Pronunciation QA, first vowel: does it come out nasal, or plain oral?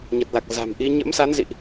oral